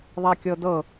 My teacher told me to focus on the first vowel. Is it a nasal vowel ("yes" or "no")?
no